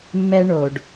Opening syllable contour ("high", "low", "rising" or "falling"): high